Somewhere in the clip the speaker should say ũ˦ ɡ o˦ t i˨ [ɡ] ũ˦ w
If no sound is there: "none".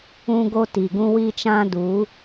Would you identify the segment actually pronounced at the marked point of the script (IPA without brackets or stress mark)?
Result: ɡ